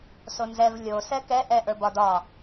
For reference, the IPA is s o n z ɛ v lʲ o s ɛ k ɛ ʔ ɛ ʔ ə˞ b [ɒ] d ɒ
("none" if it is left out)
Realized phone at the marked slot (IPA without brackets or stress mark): ɒ